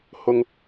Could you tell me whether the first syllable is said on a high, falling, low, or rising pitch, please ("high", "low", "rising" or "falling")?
high